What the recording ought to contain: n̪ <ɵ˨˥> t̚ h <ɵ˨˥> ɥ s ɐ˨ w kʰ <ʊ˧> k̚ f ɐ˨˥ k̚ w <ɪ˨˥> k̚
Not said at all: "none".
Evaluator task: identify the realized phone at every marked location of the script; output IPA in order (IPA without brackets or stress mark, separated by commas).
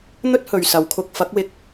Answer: ɵ˥, ɵ˨, ʊ˧, ɪ˨˥